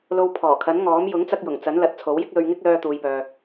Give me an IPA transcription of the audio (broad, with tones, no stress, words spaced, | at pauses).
lo˧wpʰɔː˨˩kʰɐ˨˥nŋɔː˨˥m jʊ˨˥ŋt͡sɐ˧k̚jʊ˨˩ŋ t͡sɐ˨˥nlɐ˨˥t̚ t͡sʰo˨˥wjɪ˥k̚lɵ˧ɥŋɪ˥k̚ lœː˧t̪uː˨jpœː˨